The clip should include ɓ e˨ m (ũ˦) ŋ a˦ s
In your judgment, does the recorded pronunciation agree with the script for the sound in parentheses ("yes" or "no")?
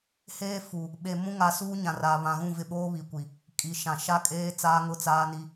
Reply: yes